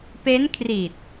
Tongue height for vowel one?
mid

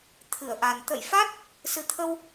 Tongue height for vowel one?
high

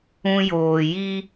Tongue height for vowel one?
high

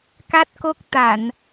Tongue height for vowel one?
low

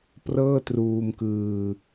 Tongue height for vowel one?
mid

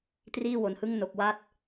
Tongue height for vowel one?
high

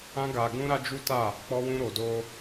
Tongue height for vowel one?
low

